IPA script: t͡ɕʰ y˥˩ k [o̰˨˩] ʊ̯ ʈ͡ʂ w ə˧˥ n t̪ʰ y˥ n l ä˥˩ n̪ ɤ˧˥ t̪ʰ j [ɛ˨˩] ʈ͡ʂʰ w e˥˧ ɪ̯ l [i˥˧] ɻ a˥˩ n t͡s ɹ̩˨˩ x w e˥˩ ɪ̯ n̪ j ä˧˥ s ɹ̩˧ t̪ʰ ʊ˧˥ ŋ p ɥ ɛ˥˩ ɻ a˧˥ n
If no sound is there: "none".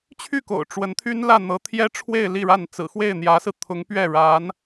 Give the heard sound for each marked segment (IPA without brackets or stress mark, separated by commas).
o̰˨˩, ɛ˥, i˥˧